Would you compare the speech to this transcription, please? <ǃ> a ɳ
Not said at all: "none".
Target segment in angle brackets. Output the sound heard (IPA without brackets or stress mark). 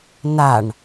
n